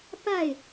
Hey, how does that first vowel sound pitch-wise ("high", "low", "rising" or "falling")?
falling